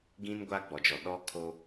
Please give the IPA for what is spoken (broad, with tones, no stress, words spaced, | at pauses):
ɡĩ˦n ɡʷaː˦ɡ͡bɔ˨d͡ʒɔ˨ ɗɔ˦ kʰo˦